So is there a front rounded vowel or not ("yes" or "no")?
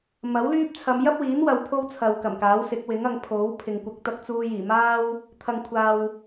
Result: yes